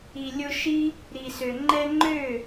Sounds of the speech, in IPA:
i˨ lʲ ʊ˧ ʃ i˦ | ɾ i˨ s ø˨ ŋ͡ǃ ɛ˧ ŋ͡ǃ ø˦˨

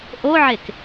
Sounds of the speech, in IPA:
ʔ o ʕ e k

